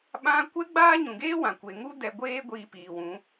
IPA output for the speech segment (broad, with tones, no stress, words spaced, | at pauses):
ɓã˦ kʷɛ˦ɡ͡baː˦ɲũ˨ɡeː˦ wã˨kʷe˨ŋu˦ dɛ˧ɡʷeː˦ ɡʷiː˧ piː˨wũ˨˦